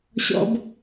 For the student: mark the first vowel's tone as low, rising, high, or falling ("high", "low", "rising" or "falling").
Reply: low